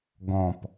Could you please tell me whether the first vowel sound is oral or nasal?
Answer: nasal